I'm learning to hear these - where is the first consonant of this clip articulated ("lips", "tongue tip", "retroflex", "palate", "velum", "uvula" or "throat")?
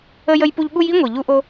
palate